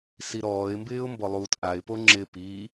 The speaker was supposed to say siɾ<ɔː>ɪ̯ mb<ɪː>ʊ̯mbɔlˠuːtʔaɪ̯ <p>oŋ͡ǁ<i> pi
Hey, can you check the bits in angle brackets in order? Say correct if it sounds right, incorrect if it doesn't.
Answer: correct, correct, correct, incorrect: ɪ

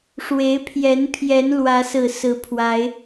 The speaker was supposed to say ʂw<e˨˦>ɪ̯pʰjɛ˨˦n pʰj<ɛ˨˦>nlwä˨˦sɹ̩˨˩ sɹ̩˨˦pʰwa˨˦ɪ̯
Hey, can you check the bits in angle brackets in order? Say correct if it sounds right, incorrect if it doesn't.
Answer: correct, correct

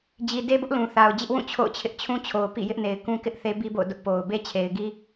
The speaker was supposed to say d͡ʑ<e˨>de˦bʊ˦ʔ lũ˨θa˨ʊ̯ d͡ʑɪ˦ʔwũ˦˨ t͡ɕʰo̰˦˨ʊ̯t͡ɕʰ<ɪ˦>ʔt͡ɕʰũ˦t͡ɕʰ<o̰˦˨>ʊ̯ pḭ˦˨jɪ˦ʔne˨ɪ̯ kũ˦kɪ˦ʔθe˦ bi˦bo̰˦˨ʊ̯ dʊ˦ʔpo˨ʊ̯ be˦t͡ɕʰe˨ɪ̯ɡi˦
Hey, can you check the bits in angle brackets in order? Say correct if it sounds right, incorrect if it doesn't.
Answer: incorrect: i˨, correct, incorrect: o˨

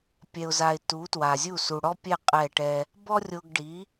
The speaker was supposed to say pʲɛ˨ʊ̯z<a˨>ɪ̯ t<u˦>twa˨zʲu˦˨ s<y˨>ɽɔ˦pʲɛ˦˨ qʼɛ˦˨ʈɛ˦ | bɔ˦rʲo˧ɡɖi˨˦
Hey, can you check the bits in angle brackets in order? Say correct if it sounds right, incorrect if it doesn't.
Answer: correct, incorrect: u˨˦, incorrect: u˨

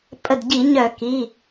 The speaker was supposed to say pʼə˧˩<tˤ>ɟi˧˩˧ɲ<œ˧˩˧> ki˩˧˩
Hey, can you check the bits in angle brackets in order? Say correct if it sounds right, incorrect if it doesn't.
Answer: incorrect: d, correct

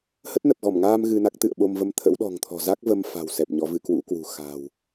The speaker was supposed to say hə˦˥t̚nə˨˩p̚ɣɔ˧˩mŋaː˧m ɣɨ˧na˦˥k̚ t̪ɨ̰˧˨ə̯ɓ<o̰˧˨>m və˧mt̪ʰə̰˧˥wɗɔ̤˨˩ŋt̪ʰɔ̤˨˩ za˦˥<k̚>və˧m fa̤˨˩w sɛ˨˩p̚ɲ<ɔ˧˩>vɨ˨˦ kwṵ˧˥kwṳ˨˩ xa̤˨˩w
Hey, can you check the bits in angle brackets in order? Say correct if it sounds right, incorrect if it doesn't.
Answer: incorrect: o˧, correct, incorrect: ɔ˨˦

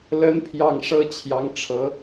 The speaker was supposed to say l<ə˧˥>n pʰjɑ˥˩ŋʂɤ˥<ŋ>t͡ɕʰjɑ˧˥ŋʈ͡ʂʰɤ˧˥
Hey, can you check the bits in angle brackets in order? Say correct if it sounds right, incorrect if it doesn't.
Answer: correct, incorrect: none

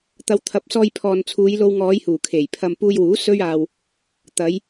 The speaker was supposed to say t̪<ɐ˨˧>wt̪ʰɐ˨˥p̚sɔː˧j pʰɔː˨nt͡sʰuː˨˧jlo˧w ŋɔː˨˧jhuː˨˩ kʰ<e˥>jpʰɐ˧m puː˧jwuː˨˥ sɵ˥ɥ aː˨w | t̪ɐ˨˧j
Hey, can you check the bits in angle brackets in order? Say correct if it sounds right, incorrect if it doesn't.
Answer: correct, incorrect: e˨˩

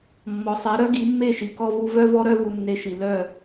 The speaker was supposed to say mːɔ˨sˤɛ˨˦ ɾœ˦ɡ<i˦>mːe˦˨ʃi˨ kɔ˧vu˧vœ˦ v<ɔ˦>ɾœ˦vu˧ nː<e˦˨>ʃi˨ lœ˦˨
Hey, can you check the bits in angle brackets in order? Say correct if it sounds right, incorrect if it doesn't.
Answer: incorrect: i˨˦, correct, incorrect: e˧

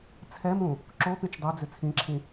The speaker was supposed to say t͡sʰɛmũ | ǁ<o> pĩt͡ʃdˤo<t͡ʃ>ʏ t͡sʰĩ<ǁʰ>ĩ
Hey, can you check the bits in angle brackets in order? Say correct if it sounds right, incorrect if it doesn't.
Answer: correct, incorrect: d͡z, correct

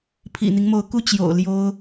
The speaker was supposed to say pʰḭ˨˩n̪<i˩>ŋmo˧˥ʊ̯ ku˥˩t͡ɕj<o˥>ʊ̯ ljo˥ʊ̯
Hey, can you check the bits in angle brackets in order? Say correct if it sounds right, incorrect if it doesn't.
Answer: incorrect: i˦, incorrect: o̰˨˩

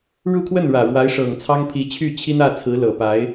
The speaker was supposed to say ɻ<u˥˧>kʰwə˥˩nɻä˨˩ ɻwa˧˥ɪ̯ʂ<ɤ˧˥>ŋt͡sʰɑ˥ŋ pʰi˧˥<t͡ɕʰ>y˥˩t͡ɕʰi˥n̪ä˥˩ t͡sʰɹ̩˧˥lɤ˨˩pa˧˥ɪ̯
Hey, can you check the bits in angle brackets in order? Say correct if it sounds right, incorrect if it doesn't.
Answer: correct, incorrect: ɤ˨˩, correct

